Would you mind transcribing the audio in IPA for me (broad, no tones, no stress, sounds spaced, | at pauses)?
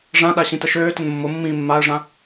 ʐ ã ɗ a ɕ ĩ t ə ʃ øː t ə n mː ʊ mː ĩː mː a ə̯ ʐ ã